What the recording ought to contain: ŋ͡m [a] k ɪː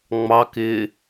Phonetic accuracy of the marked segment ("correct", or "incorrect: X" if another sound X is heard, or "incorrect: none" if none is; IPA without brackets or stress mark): incorrect: ɑ